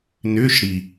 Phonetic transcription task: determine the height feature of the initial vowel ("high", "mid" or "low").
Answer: high